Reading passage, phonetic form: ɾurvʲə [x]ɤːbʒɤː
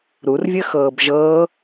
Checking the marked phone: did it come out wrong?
no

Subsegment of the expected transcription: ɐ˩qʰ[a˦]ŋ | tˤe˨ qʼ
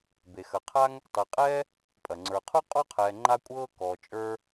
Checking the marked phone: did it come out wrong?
no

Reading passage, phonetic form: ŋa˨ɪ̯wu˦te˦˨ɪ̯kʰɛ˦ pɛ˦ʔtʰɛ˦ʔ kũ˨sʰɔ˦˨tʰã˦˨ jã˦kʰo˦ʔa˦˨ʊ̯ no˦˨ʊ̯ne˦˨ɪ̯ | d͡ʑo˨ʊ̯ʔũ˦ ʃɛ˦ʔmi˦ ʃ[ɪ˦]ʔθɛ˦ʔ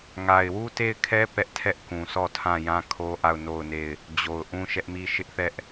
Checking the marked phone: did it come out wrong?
no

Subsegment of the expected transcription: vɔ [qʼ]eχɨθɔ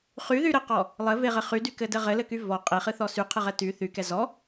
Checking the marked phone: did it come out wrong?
no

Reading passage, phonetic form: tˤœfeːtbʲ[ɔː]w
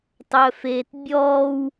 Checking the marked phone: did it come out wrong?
no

